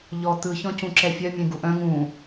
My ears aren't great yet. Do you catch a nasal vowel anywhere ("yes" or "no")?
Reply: yes